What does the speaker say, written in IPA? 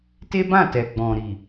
t e˦ b ã˦˨ t ɛ˨ ɡ͡b ɔ̃˨ ɾ i˨

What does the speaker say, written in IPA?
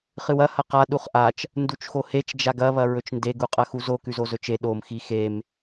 χ ɨ w ɐ h ɐ q a ɗ u χ ʔ a t͡ʃ | n d u t͡ʃ x o h e t͡ʃ d͡ʒ a ɡ ɐ β ɐ ɹ ɵ t͡ʃ n d e ɡ u qʼ ɐ x u z o k ʉ z o z ɵ t͡ʃ e ɗ o m x i x e m

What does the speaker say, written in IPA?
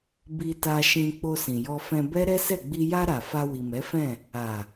b i˧ t a˧ ʃ ĩ˧ k͡p o˧ s ĩ˨ j ɔ˧ f ɛ̃˧ b ɛ˦ ɾ ɛ˦ s ɛ˦˨ ɡ͡b i˧ j a˧ ɾ a˨ f a˧ w i˨ m ɛ˨˦ f ɛ̃˦˨ | a˨

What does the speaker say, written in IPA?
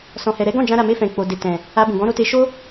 s ɔ̃˨ h ɛ˨ ɾ ɛ˨˦ ɡ ɔ̃˦˨ d͡ʒ ã˧ ɾ a˨ m e˧ f ɛ̃˨ k͡p o˨ d e˨ t ɛ̃˨ | a˧ b ũ˨ ɡ ɔ̃˨˦ ɾ o˧ t e˧ ʃ o˦

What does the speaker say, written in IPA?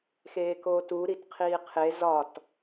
x eː k oː t u ɾ i t qʰ iː qʰ e z ɒ t

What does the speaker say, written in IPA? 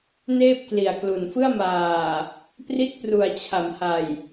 n eː˥˩ p̚ k l i˨˩ a̯ k l u˨˩ n f ɯ˥˩ a̯ m aː˨˩ | p r i˦˥ t̚ p r u˨˩ a̯ t͡ɕʰ a˩˦ m h a˨˩ j

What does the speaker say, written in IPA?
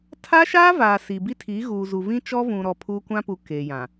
tʰ aː˦ ʃ aː˦ v aː˨ s i˨ b i˦ tʰ iː˨˦ ɣ uː˨ z u˨ v ĩ˦ t͡ʃ ɔ˦ v ũ˨ ɾ ɔ˨ pʰ uː˦ kʷ ã˦ p u˨ k eː˨ j ã˨

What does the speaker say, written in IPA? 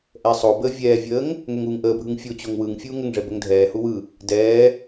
ʔ ɛ sˤ o b əː vʲ ɛː vʲ əː ŋ | ŋ ɛ ŋ uː ŋ ʔ əː bʱ ɯ ŋ fʲ o t͡ɕ o ŋ w ɯ ŋ fʲ uː ŋ ə ŋ ʐ ɛ b ə ŋ dʱ ɛː h u w ɯ | d ɛː

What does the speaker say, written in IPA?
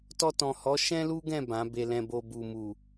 t ɔ˧ t ɔ̃˨ h ɔ˨˦ ʃ ɛ̃˦ l u˦ ɡ ɛ̃˦˨ b ã˨˦ b e˧ l ɛ̃˧ b o˧ b u˨ m u˨

